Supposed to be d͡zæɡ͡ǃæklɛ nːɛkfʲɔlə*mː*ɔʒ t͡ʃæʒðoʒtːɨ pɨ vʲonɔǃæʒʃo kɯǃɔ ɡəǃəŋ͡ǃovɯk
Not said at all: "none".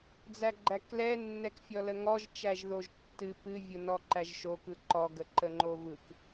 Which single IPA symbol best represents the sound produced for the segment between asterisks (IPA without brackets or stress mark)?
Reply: ŋ